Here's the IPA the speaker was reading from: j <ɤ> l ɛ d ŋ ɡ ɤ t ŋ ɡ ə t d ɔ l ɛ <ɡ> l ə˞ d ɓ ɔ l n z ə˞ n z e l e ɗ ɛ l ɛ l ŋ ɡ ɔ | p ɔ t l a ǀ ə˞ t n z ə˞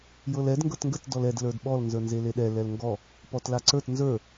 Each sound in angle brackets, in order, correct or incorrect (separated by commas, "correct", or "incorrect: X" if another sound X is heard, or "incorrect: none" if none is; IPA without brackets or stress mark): correct, incorrect: d